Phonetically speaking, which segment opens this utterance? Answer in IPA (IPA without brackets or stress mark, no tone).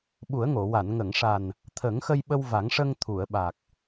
ɓ